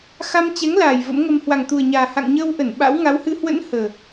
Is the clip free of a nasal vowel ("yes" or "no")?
yes